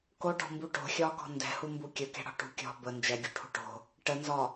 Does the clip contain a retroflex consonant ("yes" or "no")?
yes